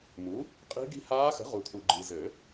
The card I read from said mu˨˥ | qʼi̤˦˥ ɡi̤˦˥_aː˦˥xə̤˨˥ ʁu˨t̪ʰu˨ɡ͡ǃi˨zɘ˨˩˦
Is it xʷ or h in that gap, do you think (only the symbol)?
h